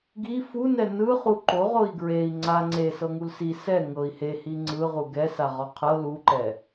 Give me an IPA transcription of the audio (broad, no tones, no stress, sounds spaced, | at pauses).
ɡ i f u n ɛ n ɯ χ u ǃ o ʁ o i̯ ɡ ɹ e i̯ ŋ͡ǀ a ŋ͡ǀ e s ɤ ŋ u l s i s ɛ ŋ ɤ i̯ h e h i ŋ͡ǀ ɯ ʁ u ɡ ɛ s a ʁ ɔ qʰ ɤ l u ǃ ɛ